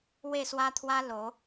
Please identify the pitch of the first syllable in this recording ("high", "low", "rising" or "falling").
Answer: falling